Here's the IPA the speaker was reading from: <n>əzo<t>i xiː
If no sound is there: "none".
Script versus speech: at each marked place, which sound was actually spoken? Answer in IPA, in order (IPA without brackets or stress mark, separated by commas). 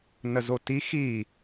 n, t